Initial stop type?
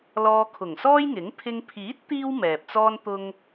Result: aspirated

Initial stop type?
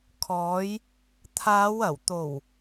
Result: aspirated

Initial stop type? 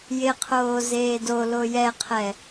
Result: aspirated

